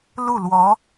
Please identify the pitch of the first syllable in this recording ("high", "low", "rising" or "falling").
falling